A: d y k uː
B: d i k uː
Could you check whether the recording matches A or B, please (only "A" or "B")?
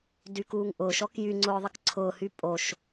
A